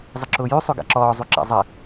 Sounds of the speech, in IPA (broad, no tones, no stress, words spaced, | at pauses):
zˤɪǁʊːjy sˤyɡa̰ǁɔː zˤyǁa̰zˤɪ